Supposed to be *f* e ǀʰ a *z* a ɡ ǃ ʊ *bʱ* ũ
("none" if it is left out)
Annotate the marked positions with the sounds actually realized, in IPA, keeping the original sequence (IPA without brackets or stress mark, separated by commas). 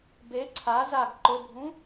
b, z, bʱ